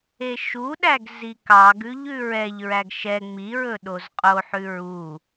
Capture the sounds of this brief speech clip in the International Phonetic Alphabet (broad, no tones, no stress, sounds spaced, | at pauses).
e ʃ u ɗ æ ɡ z i k ɑ ɡ ʉ ʎ ʉ ɹ ɛ ʎ ɹ æ ɡ ʃ ɛ ŋ͡m i ɹ ɵ ɗ o z qʼ o ħ ʉ ɹ u